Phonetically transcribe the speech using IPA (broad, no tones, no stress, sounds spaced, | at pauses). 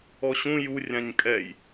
ɔ ɕ ũ j u rʲ ã ɲ kʼ ɛ j